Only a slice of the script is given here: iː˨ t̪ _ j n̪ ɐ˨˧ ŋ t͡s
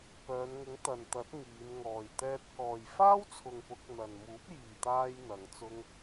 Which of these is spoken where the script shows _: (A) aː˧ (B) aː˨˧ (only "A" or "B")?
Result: A